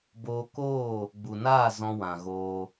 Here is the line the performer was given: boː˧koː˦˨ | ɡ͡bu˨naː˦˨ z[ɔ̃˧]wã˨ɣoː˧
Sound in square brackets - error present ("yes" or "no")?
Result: no